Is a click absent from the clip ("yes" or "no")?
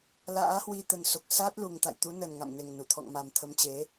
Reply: yes